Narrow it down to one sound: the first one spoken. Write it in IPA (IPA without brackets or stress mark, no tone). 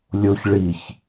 lʲ